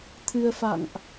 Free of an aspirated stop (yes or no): no